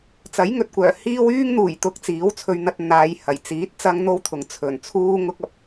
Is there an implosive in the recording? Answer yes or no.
no